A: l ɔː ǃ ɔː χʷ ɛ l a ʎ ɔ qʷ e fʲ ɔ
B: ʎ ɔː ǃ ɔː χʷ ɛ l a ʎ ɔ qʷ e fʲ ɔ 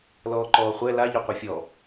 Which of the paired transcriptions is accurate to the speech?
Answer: A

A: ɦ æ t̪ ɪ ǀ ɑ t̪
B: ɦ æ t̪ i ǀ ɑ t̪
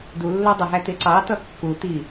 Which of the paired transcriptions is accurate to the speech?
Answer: A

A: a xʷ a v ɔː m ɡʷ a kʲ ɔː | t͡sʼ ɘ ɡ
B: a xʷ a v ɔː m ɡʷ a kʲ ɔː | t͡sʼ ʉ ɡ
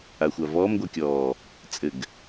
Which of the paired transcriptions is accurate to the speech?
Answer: A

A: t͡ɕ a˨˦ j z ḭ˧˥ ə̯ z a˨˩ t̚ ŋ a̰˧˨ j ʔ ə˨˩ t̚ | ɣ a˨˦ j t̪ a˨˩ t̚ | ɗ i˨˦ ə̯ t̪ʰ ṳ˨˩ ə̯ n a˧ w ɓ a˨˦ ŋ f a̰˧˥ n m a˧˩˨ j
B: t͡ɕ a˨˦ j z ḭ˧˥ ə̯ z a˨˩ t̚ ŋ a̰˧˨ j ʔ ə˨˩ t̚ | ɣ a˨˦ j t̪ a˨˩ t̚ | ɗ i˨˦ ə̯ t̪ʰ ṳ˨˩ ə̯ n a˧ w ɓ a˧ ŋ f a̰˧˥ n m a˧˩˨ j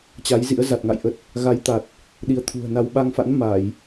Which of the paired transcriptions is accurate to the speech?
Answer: B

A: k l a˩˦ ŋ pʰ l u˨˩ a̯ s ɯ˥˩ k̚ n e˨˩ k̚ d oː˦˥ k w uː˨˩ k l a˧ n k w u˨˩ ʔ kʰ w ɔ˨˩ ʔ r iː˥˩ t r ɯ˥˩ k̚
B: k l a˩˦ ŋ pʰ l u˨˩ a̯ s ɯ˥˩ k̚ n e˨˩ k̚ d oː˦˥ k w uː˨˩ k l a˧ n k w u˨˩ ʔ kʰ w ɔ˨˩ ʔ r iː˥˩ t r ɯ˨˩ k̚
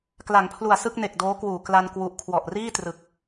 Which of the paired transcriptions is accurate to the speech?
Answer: B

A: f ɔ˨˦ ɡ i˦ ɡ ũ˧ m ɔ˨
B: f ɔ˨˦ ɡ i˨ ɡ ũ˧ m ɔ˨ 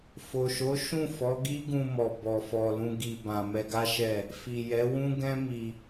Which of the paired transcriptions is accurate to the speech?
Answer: A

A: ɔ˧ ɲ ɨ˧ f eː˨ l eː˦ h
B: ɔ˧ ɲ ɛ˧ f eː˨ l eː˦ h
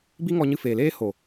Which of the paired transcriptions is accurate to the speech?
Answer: A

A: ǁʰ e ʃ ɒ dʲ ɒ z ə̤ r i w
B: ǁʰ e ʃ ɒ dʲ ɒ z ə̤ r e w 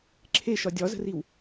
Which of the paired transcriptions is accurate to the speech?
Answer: A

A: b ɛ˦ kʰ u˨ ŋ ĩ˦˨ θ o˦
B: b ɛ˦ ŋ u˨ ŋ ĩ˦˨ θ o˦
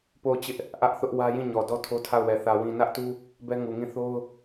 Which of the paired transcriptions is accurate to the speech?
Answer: B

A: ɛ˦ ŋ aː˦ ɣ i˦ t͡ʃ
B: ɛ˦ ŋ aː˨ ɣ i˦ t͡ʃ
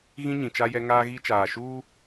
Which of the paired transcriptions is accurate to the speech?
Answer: A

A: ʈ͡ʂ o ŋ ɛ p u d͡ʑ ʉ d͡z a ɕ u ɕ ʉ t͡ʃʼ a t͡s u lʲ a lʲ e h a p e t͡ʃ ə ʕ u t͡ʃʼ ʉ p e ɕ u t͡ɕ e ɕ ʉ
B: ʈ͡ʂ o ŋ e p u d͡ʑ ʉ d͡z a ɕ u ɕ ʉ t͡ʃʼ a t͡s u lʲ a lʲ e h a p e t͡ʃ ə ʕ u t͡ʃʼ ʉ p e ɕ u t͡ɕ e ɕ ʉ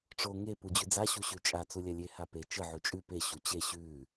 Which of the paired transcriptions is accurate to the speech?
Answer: B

